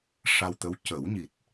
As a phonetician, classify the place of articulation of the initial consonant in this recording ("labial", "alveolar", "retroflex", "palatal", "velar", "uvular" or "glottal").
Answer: retroflex